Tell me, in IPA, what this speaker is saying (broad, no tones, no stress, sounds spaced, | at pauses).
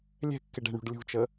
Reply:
lʲ ɛ̤ kː ɪ ɖ ɛ̤ ɳ ṳ ɖ lʲ ṳ t͡ʃ ə